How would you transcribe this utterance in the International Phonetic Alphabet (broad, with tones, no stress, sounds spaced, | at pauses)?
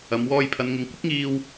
ɐ˨˧ m w ɔː˧ j pʰ ɐ˨˧ n ŋ ɪ˨˧ ŋ kʷ ɪ˥ k̚ ŋ iː˧ w